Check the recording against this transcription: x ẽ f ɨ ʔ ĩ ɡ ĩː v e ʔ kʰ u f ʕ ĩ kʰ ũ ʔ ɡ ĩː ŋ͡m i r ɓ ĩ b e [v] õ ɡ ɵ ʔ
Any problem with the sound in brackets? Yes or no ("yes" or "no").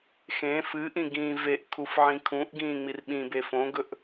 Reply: yes